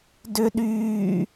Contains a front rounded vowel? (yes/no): yes